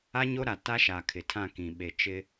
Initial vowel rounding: unrounded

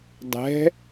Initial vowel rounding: unrounded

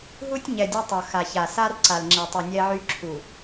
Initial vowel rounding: rounded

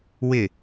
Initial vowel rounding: unrounded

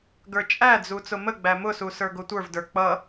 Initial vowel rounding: unrounded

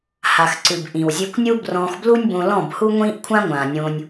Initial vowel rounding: unrounded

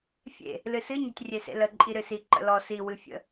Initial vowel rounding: unrounded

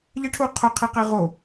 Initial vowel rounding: unrounded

